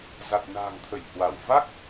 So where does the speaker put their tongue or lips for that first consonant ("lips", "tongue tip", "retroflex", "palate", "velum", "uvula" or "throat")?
tongue tip